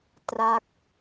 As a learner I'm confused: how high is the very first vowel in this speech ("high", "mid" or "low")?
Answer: low